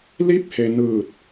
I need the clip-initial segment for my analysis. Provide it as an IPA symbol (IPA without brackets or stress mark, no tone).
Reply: l